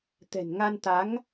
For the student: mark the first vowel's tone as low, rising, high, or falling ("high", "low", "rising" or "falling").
low